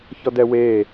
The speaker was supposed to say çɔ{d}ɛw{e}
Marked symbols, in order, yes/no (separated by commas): yes, no